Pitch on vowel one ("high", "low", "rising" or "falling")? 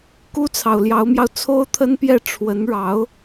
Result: high